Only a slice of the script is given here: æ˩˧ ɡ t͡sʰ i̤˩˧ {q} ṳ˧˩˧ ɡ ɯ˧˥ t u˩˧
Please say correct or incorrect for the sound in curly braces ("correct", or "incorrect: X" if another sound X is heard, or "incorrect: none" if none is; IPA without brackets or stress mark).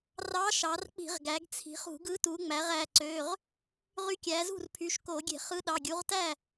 incorrect: χ